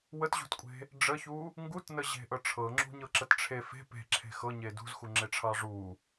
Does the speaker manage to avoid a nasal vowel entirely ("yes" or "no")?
yes